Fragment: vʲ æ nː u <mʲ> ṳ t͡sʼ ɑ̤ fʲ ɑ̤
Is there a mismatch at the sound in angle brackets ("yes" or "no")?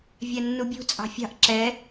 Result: yes